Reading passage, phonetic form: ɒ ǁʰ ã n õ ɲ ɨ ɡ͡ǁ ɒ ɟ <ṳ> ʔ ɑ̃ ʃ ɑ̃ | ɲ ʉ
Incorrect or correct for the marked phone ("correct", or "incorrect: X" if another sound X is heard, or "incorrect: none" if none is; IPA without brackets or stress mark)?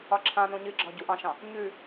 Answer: incorrect: u